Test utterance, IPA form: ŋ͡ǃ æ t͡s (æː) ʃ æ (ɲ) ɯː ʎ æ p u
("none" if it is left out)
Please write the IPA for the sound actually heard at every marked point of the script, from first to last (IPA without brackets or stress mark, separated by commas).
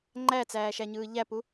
æː, ɲ